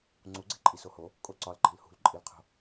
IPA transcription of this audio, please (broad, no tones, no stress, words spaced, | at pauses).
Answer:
ŋ͡ǀuɡ͡ǀe̤ ǃʼisoho | kʼoǀɒlǃi̤l hṳlǃʼilqʰo̤